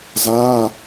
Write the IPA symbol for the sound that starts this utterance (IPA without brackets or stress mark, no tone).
z